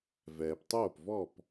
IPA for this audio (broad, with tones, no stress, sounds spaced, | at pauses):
v ɛː˩ p tˤ oː˥˩ p v ɔ˥˩ p